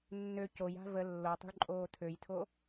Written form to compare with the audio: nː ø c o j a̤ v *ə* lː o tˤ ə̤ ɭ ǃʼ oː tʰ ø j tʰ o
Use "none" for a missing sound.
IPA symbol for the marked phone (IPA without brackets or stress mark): ə